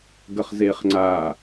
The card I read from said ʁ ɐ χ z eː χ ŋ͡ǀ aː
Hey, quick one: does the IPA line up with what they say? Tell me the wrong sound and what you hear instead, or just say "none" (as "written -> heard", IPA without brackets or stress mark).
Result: ʁ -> ɡ